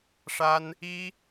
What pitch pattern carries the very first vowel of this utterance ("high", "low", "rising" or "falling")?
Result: high